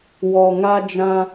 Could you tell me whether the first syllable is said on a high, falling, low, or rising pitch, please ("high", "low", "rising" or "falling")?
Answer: low